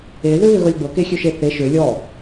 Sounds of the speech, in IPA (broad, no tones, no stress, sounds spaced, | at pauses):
e ð ø β ø ɣ ɤ lʲ ɡ͡b ɤ k e xʲ ø ʃ e θ e ʃ ø lʲ ɔ